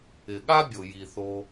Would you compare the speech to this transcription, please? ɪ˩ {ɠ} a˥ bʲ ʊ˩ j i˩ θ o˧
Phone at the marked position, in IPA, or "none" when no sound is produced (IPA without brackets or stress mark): ɠ